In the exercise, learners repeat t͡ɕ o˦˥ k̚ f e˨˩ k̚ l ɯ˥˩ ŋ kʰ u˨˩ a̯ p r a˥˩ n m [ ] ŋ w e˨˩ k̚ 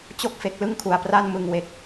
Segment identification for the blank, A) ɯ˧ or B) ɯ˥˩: A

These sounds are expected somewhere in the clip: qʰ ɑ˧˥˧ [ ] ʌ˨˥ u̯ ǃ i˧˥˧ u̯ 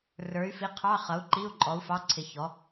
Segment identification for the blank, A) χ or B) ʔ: A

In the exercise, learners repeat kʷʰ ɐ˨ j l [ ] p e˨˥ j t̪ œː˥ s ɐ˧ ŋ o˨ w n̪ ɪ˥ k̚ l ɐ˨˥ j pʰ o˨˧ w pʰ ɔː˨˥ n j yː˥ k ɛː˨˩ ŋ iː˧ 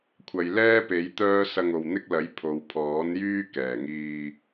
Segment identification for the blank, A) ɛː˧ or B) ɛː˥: B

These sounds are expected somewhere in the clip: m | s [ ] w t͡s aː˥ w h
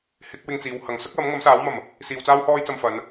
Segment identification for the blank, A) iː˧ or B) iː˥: A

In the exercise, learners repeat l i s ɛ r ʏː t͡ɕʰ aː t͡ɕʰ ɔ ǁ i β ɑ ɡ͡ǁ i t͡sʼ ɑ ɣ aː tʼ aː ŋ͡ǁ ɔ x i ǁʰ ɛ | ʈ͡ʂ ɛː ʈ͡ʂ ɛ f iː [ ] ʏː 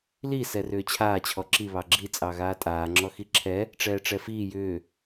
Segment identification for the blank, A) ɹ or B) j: B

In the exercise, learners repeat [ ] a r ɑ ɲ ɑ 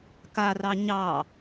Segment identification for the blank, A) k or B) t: A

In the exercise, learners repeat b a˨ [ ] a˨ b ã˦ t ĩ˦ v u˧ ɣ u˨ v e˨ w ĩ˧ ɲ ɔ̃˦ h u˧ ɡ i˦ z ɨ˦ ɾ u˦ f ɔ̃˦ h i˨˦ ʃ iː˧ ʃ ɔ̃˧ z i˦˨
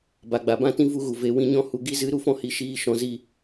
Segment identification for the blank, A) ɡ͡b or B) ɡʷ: A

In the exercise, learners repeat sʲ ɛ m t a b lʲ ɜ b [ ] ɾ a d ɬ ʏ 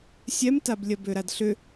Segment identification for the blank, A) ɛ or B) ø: B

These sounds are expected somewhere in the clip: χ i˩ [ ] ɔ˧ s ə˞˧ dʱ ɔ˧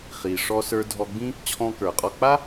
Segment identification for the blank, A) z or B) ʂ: B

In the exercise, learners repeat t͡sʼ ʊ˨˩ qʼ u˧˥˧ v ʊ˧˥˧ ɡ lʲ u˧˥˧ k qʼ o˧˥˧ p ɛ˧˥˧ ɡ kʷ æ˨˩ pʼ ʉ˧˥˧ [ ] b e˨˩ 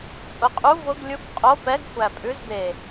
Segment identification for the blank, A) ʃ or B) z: B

